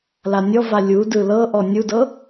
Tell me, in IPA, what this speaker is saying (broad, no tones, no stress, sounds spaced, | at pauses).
l a nʲ ɔ v a lʲ u d ɯ l ɤ ʔ ɔ nʲ u d ɤ